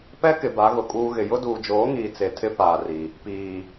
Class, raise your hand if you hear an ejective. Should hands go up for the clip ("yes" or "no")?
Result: yes